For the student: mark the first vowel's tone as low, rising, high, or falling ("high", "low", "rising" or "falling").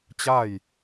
falling